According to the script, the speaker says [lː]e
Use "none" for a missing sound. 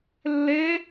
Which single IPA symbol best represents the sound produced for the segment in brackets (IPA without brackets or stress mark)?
lː